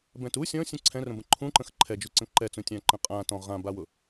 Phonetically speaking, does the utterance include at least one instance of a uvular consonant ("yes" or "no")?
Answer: yes